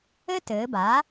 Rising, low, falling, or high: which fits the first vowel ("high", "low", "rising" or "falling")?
high